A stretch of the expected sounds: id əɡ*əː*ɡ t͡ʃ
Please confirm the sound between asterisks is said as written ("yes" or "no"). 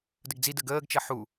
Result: yes